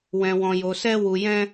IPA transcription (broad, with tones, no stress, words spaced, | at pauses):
wɛ̃˧wɔ̃˧jo˧sɛ˦ wu˧jɛ̃˦